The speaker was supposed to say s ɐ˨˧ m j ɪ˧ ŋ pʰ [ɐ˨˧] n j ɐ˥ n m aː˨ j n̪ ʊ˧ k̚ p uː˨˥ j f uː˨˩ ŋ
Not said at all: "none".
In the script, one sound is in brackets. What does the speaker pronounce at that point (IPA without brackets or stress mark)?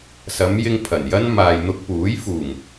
ɐ˨˩